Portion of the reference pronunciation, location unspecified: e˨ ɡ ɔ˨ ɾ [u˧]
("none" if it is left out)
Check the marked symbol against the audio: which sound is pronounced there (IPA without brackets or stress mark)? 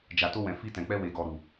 u˨